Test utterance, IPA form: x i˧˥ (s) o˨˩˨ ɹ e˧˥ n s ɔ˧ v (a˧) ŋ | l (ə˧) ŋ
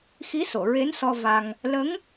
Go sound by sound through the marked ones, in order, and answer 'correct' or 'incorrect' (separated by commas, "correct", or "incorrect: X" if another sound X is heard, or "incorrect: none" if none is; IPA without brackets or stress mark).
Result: correct, correct, incorrect: ə˧˥